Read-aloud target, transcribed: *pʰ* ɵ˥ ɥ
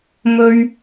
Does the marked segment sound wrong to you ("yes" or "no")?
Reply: yes